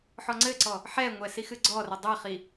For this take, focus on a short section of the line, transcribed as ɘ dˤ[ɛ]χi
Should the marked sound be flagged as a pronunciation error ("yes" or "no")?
no